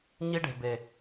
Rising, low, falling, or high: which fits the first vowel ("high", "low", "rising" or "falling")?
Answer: high